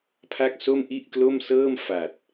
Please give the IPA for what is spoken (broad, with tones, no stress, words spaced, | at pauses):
pʰa˥˩k̚ so˥˩mʔi˥˩ʔklo˥˩msɤː˥˩m fa˨˩t̚